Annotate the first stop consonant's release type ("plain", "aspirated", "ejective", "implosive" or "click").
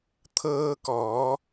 aspirated